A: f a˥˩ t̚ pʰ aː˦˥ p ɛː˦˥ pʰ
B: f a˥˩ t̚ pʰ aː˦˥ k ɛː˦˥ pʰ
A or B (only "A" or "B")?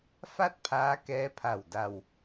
B